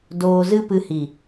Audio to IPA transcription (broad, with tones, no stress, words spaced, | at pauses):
doː˧zɨ˦pɨ˧hi˨